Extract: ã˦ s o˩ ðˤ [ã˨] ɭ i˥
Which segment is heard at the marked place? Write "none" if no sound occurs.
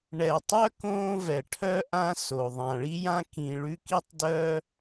ã˩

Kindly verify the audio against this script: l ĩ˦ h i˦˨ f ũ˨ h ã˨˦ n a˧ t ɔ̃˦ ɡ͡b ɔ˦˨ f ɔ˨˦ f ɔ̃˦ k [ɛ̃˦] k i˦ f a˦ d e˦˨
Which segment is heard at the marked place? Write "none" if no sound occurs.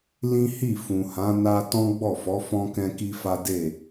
ɛ̃˦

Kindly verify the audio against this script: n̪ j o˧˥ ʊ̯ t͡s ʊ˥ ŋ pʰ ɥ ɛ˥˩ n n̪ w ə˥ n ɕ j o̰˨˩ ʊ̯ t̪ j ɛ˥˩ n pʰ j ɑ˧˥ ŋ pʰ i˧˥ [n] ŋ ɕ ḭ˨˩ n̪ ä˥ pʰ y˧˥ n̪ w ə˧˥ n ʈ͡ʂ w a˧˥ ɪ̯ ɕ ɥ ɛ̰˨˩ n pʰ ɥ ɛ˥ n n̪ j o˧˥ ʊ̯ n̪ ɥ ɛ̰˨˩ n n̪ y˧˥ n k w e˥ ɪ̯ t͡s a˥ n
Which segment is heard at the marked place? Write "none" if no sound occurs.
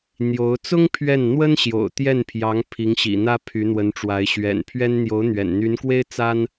none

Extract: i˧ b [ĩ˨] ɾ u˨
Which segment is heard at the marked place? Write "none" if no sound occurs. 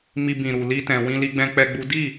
ĩ˨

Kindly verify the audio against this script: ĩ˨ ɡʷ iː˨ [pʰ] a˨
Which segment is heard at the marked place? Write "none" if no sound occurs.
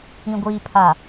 pʰ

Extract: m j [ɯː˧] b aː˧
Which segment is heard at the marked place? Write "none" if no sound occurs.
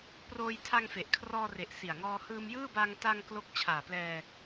ɯː˥˩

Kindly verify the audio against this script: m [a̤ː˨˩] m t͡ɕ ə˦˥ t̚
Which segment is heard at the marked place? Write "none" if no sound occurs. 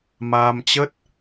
aː˧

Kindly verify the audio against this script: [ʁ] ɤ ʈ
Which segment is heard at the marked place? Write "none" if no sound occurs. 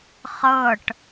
χ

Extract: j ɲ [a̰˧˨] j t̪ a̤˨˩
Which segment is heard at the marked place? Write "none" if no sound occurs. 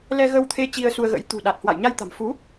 a˧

